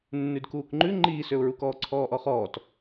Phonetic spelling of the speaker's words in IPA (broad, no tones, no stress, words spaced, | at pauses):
nːʉdkuːkŋ͡ǃʉ ŋ͡ǃiːsøʊ̯ɹukɔː ǀʰɔːʔɔχɔːt